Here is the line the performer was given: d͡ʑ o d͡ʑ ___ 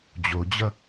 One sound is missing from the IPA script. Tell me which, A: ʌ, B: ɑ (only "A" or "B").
A